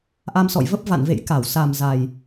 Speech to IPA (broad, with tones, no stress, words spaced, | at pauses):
ʔa˧msɔ̰˧˨jvə˦˥p̚ va̰˧˨nvḛ˧˨jka˧˩w sa˨˩mza˨˩j